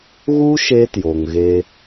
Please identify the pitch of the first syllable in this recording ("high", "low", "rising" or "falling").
high